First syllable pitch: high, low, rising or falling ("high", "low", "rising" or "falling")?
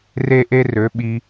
high